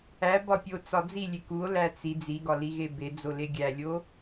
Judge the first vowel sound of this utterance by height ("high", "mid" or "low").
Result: low